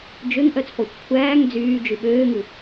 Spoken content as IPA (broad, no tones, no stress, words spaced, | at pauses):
d͡ʒøŋʔœt͡spɔxʷ kʷʰæːŋ d͡zyːd͡ʒy ɓøːŋʉ